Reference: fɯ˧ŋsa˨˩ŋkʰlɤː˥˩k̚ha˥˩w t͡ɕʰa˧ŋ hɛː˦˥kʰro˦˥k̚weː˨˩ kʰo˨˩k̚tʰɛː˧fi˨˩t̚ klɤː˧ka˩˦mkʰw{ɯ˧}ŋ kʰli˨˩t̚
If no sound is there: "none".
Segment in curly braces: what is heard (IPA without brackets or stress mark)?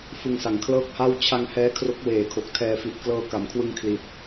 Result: ɯ˧